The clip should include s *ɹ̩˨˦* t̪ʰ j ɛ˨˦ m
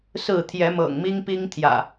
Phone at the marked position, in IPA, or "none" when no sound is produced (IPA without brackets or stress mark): ɹ̩˥˨